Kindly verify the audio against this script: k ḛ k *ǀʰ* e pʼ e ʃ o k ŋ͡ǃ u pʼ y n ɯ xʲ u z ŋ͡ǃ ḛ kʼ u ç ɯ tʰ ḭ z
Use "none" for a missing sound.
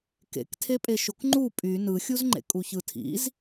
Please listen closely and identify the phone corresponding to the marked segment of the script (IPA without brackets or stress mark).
tʰ